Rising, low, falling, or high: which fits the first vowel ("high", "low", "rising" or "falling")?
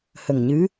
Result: low